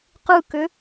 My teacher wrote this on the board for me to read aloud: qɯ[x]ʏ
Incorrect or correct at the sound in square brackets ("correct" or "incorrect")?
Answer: incorrect